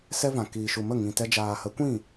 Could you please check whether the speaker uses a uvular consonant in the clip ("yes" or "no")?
no